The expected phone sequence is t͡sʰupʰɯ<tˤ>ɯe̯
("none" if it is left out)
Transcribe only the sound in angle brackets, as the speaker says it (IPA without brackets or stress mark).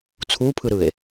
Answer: ɾ